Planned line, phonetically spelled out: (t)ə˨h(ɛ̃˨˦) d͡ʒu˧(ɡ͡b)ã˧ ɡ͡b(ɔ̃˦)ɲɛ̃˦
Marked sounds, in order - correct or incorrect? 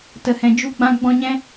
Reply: correct, incorrect: ɛ̃˨, correct, incorrect: ɔ̃˧

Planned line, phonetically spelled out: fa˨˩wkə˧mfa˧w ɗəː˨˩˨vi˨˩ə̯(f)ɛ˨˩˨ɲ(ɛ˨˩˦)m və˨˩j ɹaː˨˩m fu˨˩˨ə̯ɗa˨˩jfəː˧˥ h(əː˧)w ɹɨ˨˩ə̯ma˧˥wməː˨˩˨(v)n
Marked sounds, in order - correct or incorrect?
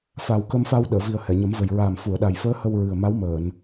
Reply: incorrect: h, incorrect: ə˨˩˦, incorrect: ə˧, incorrect: none

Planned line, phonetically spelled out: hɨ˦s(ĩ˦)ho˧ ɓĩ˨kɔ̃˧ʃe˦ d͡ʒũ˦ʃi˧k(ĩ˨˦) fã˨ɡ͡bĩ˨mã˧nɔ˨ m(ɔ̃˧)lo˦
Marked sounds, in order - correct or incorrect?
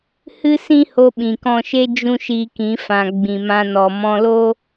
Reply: correct, correct, correct

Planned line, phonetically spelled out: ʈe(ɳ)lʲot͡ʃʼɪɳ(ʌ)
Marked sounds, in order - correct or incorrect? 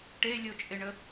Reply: incorrect: none, incorrect: ə

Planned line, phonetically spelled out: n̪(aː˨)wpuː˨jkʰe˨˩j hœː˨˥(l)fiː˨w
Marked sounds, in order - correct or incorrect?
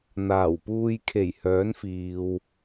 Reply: incorrect: aː˨˩, incorrect: n

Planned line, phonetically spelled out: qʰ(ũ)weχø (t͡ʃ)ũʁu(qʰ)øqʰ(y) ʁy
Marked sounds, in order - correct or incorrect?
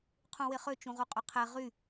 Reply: correct, correct, incorrect: qʼ, incorrect: e

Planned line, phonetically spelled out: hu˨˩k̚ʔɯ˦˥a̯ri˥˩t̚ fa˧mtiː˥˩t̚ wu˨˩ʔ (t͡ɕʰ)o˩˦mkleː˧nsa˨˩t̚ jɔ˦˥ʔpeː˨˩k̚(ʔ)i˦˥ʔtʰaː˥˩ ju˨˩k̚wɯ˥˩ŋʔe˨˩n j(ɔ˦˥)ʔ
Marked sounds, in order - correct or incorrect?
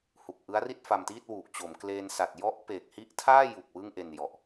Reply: incorrect: t͡ɕ, incorrect: h, incorrect: ɔ˨˩

